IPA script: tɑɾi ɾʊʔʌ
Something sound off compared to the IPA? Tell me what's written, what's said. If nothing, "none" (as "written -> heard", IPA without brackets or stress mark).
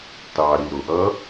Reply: none